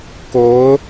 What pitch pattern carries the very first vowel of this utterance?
rising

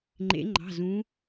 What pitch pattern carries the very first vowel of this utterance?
rising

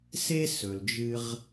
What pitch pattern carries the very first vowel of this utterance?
high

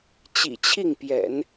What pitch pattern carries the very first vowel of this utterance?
low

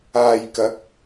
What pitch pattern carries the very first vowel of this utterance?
low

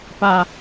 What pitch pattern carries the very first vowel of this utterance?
low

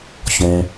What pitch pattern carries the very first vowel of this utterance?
high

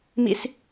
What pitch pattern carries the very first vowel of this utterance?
high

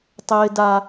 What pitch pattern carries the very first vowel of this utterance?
high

